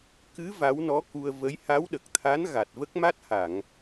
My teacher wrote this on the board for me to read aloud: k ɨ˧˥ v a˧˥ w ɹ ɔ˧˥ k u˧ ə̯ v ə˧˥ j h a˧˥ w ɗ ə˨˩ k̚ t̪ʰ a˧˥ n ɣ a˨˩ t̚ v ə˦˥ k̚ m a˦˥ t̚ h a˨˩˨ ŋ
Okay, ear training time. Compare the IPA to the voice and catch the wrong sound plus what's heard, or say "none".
ɹ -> n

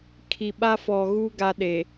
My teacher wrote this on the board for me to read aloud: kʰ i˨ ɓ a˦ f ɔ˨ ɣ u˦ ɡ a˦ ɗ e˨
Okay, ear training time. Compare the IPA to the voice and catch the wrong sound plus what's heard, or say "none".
none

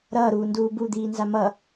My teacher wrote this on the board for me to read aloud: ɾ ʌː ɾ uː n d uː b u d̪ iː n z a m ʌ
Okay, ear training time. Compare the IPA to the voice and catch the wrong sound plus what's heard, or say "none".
none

